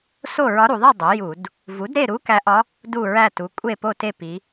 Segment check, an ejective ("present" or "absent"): present